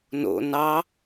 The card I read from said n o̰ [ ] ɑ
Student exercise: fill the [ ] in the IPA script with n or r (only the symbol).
n